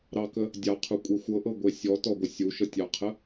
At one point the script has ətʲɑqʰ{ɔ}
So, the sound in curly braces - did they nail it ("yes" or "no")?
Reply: no